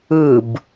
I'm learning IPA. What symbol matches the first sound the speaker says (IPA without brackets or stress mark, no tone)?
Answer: ɯ